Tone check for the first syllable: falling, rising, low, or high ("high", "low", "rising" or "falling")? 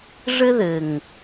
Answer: high